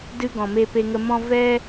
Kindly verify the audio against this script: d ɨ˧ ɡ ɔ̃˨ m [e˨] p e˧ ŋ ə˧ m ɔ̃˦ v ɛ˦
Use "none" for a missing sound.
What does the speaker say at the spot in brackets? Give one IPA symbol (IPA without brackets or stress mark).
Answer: e˧